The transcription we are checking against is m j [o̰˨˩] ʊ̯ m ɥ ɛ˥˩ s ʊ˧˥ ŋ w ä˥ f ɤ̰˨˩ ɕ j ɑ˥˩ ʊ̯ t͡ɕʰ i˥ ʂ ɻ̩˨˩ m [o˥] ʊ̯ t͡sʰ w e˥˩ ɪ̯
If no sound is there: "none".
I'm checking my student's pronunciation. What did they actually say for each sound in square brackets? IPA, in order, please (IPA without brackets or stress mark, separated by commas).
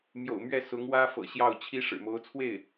o̰˨˩, o˧˥